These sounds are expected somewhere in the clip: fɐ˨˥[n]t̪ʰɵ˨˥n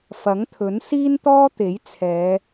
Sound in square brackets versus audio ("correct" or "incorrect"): incorrect